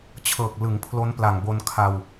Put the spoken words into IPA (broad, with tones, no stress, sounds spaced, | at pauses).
t͡ɕʰ ɤː˨˩ k̚ l ɯ˩˦ ŋ pʰ l o˦˥ n p l a˨˩ ŋ b o˧ n kʰ a˧ w